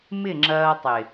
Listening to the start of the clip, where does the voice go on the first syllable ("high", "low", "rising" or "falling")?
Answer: falling